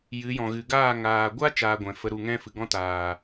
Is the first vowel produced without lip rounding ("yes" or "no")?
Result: yes